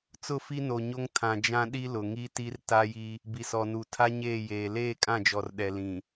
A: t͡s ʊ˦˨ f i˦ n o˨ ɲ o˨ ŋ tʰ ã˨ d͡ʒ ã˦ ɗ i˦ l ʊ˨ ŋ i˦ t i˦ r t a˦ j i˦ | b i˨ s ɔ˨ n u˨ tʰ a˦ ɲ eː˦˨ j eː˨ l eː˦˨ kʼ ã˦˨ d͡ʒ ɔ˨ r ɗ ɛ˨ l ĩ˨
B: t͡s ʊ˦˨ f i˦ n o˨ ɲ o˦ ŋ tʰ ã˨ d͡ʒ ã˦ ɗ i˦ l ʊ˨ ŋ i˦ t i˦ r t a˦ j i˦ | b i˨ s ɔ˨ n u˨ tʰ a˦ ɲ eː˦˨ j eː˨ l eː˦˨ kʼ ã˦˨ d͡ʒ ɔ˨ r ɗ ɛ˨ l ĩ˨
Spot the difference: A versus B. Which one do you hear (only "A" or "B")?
B